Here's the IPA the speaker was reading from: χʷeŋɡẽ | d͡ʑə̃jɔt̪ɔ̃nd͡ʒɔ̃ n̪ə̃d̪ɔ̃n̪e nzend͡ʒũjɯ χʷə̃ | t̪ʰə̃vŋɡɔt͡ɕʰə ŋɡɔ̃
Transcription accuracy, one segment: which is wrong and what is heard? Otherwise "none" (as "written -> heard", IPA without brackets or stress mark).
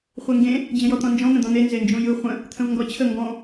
none